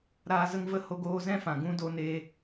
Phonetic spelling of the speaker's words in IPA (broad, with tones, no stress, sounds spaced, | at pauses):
ɾ aː˧ z ə˧ ŋ v ə˦˨ h o˧ ɡ oː˧ z ɛ̃˦ f ã˨ ɡ ũ˦ d o˧ n e˧